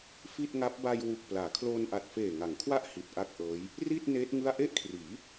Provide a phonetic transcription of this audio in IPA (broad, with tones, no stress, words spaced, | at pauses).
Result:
fi˥˩t̚ŋa˦˥p̚ ba˧jwu˨˩k̚ plaː˩˦kʰloː˧nʔa˨˩t̚ feː˨˩ŋa˩˦ŋkʰwa˥˩ʔ hi˨˩t̚ʔa˥˩k̚ʔɤː˦˥j | ri˥˩t̚ neː˦˥t̚ ŋɯ˥˩a̯ ʔe˥˩ʔkʰriː˩˦